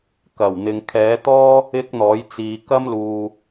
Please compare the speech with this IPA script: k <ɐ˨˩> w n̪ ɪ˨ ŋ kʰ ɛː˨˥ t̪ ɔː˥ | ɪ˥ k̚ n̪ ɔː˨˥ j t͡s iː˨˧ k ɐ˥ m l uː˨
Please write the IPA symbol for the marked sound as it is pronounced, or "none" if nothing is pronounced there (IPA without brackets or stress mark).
ɐ˨˩